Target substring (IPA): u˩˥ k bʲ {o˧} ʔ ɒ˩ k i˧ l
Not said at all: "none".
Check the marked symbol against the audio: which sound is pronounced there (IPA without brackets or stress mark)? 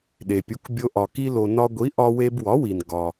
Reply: o˧